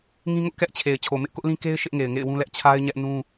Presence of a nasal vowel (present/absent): present